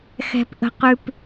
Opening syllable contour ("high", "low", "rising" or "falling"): low